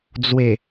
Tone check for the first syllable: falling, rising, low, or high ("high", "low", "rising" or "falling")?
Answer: low